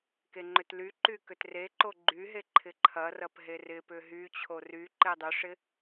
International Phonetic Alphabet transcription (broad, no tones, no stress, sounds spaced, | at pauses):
k e ŋ͡ǃ ʏ t l y ǃ y k ʏ t r e ǃ o ɡ͡ǃ y ɦ e ǃʰ ɪ ǃʰ ɐ r ɐ p ɦ e r ɪ p ʏ ɦ y t͡ɕʰ o r y ǃ e dˤ ʏ ʂ ɪ